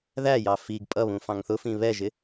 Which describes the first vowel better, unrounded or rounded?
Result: unrounded